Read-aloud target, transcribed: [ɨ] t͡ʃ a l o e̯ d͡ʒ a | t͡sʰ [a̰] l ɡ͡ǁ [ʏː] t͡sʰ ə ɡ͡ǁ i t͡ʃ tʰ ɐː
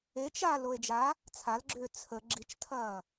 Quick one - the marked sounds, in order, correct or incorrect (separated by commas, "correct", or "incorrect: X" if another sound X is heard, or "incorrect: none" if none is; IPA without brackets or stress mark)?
incorrect: e, incorrect: a, correct